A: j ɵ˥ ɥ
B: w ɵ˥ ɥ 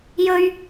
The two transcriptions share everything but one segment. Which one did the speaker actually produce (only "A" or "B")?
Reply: A